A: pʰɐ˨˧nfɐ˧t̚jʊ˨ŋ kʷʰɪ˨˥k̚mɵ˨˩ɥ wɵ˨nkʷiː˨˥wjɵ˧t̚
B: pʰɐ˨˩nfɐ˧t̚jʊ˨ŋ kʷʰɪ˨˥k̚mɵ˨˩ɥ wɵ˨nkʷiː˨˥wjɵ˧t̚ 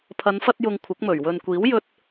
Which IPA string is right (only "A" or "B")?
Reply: A